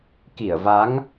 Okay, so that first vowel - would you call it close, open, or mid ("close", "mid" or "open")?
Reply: close